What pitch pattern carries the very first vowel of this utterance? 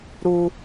high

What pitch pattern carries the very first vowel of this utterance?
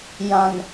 low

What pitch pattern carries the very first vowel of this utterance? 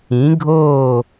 rising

